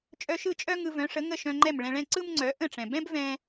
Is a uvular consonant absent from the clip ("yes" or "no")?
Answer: yes